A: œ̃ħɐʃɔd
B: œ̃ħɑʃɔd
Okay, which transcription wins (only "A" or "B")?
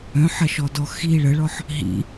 A